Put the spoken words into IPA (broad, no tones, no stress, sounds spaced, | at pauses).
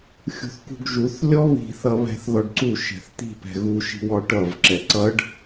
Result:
xʲ ṳ θ k ṳ ɡ ʒ u θ lʲ ɔ β i̤ θ ʌ β ɛ̤ θ ð ɔ ɖ ǀ u ʃ ɛ̤ θ t̪ i̤ p ɛ̤ ɣ u ʃ i̤ w ɔ ʈ ʌ v ǁ ɛ ǀ ʌ ɖ